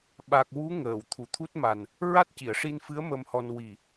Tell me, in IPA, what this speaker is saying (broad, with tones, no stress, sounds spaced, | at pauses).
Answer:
ɓ a˨˩ k̚ w u˧˥ ŋ əː˨˩˨ w t̪ʰ u˨˩˨ t̪ʰ u˦˥ t̚ m a˨˩ n | ɹ a˦˥ t̚ c i˨˩˨ ə̯ ʂ i˧ n f ɨ˧˥ ə̯ m ə˧ m h ɔ˧ n w i˨˩